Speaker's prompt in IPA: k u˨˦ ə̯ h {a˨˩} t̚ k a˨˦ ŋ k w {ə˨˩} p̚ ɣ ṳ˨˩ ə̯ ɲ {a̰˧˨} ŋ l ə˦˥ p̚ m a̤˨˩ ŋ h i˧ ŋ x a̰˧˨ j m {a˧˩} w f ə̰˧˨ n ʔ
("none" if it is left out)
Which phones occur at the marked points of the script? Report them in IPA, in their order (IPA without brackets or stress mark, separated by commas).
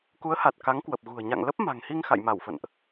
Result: a˨˩, ə˨˩, a̰˧˨, a˧˩